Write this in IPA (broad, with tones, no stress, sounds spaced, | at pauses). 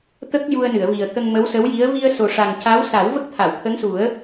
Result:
t̪ ə˦˥ k̚ j u˧ ə̯ n ɨ˨˩˨ ə̯ v i˨˩ ə̯ t̪ ə˧ ŋ m ə˧˥ w s ə˧˥ w j i˧˥ ə̯ v i˧ ə̯ s o˨˩ ʂ a˨˩ ŋ c a˧˥ w s a˨˩˦ w v ə˦˥ k̚ t̪ʰ a˨˩˨ w t̪ʰ ə˧˥ ŋ s u˨˩˦ ə̯